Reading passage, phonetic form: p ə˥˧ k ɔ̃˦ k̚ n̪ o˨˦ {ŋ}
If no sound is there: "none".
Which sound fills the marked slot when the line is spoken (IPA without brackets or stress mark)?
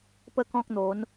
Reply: n